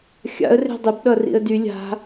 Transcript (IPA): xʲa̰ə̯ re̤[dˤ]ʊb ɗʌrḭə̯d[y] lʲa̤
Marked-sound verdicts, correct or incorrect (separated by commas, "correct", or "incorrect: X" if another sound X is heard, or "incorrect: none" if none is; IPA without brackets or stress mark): correct, correct